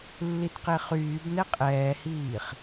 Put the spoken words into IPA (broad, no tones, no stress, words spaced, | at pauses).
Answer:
lːitqeχyːbnɛ qʼɛːhiːχ